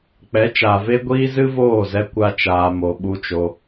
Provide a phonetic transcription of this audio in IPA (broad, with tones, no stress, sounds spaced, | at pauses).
k͡p ɛ˨˦ t͡ʃ aː˨ v e˧ ɡʷ iː˧ z ɨ˦ v oː˦˨ z ɛ˧ kʷ a˦ t͡ʃ aː˧ m o˧ ɓ u˧ t͡ʃ o˧